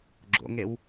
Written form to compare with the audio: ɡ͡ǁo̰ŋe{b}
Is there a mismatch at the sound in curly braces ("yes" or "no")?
yes